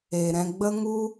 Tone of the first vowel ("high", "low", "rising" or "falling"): low